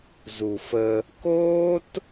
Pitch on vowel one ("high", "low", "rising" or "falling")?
low